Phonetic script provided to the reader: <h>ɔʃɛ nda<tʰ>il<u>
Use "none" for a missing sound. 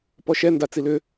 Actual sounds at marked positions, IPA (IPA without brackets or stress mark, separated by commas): p, t͡s, ʏ